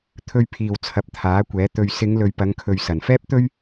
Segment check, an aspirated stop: present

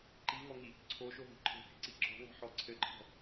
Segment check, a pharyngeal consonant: present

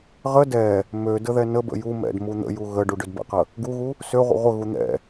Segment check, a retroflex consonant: present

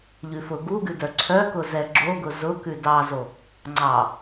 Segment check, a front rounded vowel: present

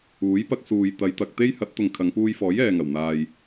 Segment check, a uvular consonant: absent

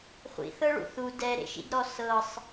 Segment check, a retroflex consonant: present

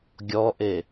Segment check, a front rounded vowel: absent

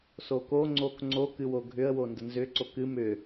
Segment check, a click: present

